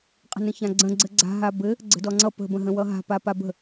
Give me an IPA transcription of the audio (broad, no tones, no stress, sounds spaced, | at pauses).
qʼ ə̤ n ə̃ ç ã ɡ͡ǀ ə̃ ɡ͡ǀ ɘ ɡ͡ǀ a̤ ɦ a b ɘ | ɡ͡ǀ ə̤ d ɔ ŋ͡ǀ ʌ p ə̤ b ə̃ ɦ ə̃ w ʌ ɦ a̤ p a p a b ə̤